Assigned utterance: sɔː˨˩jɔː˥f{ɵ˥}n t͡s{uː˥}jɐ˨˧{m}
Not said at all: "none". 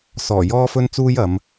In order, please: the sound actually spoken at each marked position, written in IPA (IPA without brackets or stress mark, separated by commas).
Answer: ɵ˥, uː˥, m